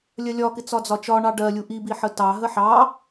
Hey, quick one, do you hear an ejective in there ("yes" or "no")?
no